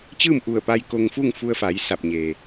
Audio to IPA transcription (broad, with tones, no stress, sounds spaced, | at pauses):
t͡ɕ ɯː˥˨ m ʔ u˧˩ ə̯ p a˧ j k o˧ ŋ f u˥˨ ŋ f u˧ ə̯ f a˩˧ j s a˧˩ p̚ ɲ eː˩